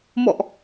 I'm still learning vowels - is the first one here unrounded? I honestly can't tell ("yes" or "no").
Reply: no